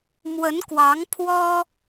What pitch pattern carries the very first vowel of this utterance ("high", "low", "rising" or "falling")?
rising